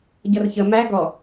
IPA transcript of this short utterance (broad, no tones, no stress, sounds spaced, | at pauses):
ɟ ʌ r ç ə m æ ɡ ɔ